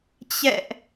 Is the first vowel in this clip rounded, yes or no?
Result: no